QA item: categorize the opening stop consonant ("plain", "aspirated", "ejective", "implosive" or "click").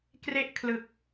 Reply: plain